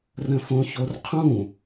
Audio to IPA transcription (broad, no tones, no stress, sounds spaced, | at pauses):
r ə̃ f õ ç o r qʰ ũ